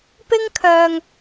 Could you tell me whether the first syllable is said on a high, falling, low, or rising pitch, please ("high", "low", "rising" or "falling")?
high